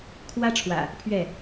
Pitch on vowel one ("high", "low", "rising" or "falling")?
high